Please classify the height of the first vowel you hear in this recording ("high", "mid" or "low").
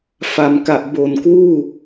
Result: low